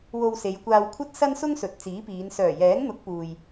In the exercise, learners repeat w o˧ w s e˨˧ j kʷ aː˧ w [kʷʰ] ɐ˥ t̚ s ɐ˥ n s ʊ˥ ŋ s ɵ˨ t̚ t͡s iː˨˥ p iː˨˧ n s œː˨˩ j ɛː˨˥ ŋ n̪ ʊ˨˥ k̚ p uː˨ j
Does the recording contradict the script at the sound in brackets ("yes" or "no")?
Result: no